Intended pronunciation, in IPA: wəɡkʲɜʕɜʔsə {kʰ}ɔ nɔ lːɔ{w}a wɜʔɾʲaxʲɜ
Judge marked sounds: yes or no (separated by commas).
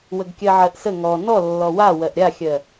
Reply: no, yes